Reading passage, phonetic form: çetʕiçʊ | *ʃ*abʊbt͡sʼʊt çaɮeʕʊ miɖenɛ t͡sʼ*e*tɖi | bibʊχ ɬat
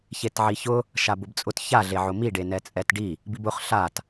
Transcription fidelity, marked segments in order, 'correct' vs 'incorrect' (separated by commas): correct, incorrect